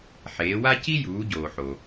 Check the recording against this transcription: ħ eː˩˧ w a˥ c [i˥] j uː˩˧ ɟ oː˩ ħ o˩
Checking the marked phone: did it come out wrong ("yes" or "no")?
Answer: no